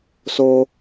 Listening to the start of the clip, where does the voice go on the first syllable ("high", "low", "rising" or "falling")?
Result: high